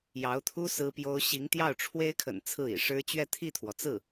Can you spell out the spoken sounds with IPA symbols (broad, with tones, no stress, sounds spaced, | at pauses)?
j ɑ˧˥ ʊ̯ t̪ʰ u˥ s ɹ̩˥ p j o˥ ʊ̯ ɕ i˧˥ ŋ t̪ j ɑ˥˩ ʊ̯ ʈ͡ʂʰ w e˥ ɪ̯ kʰ ə̰˨˩ n t͡sʰ ɹ̩˥˩ ḭ˨˩ ʂ ɻ̩˥ t͡ɕ ɥ ɛ˥˧ t̪ʰ i˥˩ t̪ʰ w ɔ˩ t͡s ɹ̩˥˩